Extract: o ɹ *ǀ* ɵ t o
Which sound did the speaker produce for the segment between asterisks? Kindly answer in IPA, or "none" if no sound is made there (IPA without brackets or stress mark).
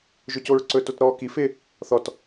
ǀ